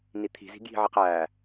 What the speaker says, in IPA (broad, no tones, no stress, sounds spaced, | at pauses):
n i t̪ʰ i̤ z i̤ ɡ j i̤ ʕ i q æ